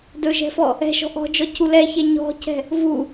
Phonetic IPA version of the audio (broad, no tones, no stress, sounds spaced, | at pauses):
d ɵ ʒ ɛ̤ f ɔ | ɛ̤ ʃ ɔ̤ ʔ ɔ̤ d͡ʒ ɔ c u l ɛ ç ɛ ɲ ɔ̤ c ɛ̤ | v u